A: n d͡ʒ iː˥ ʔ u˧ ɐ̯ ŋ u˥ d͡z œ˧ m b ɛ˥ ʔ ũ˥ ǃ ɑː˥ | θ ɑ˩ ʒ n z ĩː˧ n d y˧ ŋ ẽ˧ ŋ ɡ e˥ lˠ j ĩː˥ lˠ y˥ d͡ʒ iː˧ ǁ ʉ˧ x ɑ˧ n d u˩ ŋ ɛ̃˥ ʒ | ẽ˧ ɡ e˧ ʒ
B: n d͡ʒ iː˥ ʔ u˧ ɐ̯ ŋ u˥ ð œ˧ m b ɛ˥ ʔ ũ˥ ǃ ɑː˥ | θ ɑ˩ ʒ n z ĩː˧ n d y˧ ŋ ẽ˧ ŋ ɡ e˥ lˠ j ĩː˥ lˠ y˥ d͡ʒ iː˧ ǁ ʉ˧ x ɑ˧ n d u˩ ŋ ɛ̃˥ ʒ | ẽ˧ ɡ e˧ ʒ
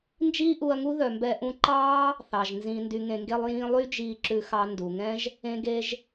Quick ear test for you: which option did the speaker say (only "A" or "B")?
B